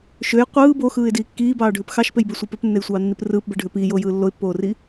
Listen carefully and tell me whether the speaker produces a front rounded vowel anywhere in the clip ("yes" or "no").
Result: yes